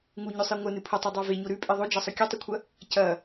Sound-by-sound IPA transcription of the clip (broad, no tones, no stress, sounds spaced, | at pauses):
ŋ u ɲ ɵ sˤ i ŋʷ ɐ n ɨ pʰ ɵ tˤ u dˤ o v e ɲ o ɾ ʉ pʼ i ðˤ o d͡ʒ ɐ sˤ ɵ kʲ ɨ tˤ ɨ kʷʰ ɐ | c ɐ